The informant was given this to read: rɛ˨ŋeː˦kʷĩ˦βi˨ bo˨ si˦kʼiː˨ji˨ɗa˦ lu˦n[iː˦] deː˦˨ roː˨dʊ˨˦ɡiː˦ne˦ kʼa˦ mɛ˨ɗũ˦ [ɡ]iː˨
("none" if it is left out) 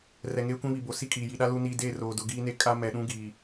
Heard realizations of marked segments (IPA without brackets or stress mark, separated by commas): iː˦, ɡ